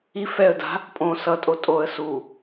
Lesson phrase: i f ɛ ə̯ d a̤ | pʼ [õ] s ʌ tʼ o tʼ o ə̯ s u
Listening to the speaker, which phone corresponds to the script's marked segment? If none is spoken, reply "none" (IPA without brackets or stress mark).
õ